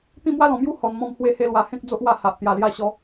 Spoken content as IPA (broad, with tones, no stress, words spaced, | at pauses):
t̪ĩ˥˧mwa˦lɔ̃˨˩mju˦ hɔ˨˩nmɔ̃˧m hwe˧he˧lwa˨˩ hẽ˦k̚d͡zo˦ʔwa˧ ha˨ʔ t̪ja˨˩lja˧ɕɔ˨˦